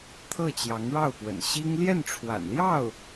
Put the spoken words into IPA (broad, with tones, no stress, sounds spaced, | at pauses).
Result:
t̪ʰ ɤ˥˩ t͡ɕ j ɑ˧˥ ŋ ɻ ɑ˥˩ ʊ̯ p w ə̰˨˩ n ɕ i˥ ŋ l j ɛ˥˩ n ʈ͡ʂʰ w a̰˨˩ n l j ɑ˥˩ ʊ̯